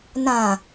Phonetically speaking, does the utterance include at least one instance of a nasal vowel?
yes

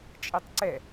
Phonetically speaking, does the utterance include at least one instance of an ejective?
yes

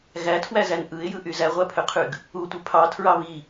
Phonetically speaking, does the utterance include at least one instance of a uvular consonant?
yes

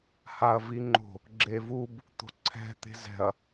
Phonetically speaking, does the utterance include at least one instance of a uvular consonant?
no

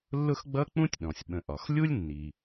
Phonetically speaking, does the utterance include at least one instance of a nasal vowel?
yes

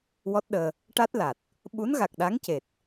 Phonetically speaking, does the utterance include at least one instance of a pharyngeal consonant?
no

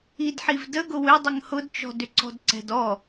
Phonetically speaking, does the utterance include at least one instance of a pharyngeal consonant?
yes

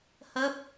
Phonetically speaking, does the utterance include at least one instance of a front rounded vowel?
no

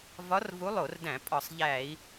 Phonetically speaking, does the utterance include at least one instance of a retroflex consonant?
no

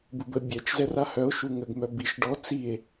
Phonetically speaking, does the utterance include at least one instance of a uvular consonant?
no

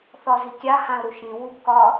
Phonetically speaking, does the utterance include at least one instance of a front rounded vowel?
no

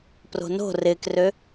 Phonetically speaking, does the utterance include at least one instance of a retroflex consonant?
no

